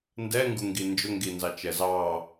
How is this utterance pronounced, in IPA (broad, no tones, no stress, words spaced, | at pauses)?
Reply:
ndɛ ŋɡuŋɡind͡ʒʊŋɡi nzɑt͡ʃɛzɑ